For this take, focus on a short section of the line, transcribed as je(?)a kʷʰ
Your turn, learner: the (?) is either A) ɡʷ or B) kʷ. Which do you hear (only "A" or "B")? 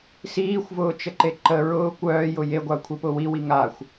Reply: A